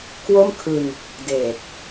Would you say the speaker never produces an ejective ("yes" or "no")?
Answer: yes